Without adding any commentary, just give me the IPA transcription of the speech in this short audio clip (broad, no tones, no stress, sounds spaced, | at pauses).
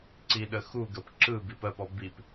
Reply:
ǀ i ɗ ə x u ɡ ə p ǁ ɯ b i p ɜ p ɔ b i p